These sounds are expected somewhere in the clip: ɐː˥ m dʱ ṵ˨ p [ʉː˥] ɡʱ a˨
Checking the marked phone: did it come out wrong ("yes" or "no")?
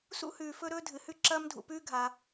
no